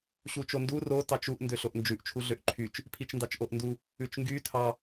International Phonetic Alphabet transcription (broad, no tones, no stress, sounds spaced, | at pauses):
ɕ u t͡ʃ o n d u r o t ɑ t͡ʃ u ʔ n d ø ɬ o ʔ n d͡ʒ ʉ ʔ t͡ʃʰ u ɮ ø ʔ ǃʰ y t͡ʃ | pʰ i t͡ʃ n d ɑ t͡ʃ ʔ o ʔ n d u | ʉ t͡ʃ ŋ ɡ y tʰ ɑ